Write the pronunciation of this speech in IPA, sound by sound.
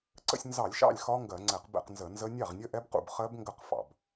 ǀ ə̰˥˨ sʲ n z ɑ˧˩˧ lʲ ʃ ɑ̰˥˨ lʲ x ɒ˦˥ ŋ ɡ ɜ˧˩˧ ŋ͡ǀ ɛ˧˩˧ q b ɛ̰˥˨ q n z ə˧˩˧ n z ə˦˥ nʲ ɑ˥˨ ʁ nʲ ə˦˥ ʔ ɛ˦˥ b q ṵ˥˨ b χ ɜ˦˥ b ŋ ɡ ə˥˨ q f ɑ̰˧˩˧ b

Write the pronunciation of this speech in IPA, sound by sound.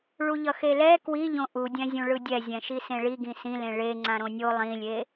ɭ u ʎ ʌ x e l ɛ k w i ʎ õ ʔ u dʲ ɛ̃ zʲ ũ ɭ ɯ dʲ ɛ zʲ ɛ̃ ʃ i s ẽ ɭ i ɡ ĩ s ĩ l ẽ ɭ e ŋ͡ǀ ã ɾ õ nʲ o lˠ ĩ lʲ e

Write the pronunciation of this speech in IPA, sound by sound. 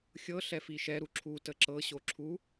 xʲ ɤ ɬ ɛ f i ʃ ɛ ɾ u ǁʰ u t ə ǁ ɤ ɕ o ǁʰ u

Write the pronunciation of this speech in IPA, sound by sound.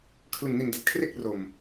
kʰ l ɯ˨˩ ŋ n i˨˩ n d a˨˩ t̚ kʰ r e˦˥ k̚ r o˨˩ m

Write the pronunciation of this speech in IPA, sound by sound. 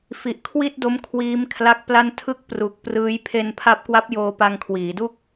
f i˨˩ ʔ kʰ w i˥˩ t̚ d o˦˥ m kʰ w iː˦˥ m kʰ l a˦˥ k̚ p l a˥˩ n tʰ ɯ˥˩ k̚ p r u˨˩ k̚ p r ɯː˦˥ j pʰ e˧ n pʰ a˦˥ p̚ k w a˦˥ p̚ j oː˧ p a˧ ŋ kʰ w iː˩˦ d u˥˩ k̚

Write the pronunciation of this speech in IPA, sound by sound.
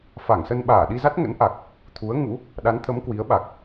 f a˧˩ ŋ s ə˧ n ɓ aː˧˩ ɗ i˧ z a˦˥ t̚ ŋ ə̰˧˥ n ʔ a˨˩ k̚ | t̪ʰ u˨˦ ə̯ ŋ ṵ˧˥ | ɗ a˨˦ n t̪ʰ ə˨˦ m k w i˨˦ ə̯ ɓ a˨˩ k̚

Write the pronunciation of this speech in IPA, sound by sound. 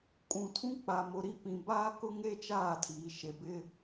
kʼ ũ˨ tʰ ũ˦ k͡p a˨ m ʊ˨ ɾ i˦ p ĩ˨ b aː˦ k ʊ˦ ŋ e˦ t͡ʃ aː˦˨ tʰ iː˨ ʃ e˨ b ɪ˦

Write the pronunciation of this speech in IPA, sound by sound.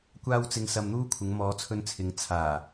kʷ aː˥ w t͡s ɪ˧ ŋ s ɐ˧ m n̪ uː˥ kʷʰ ɪ˨˧ ŋ m ɔː˨˧ t͡sʰ ɵ˧ n t͡sʰ ɪ˨˧ ŋ t͡sʰ aː˨˩

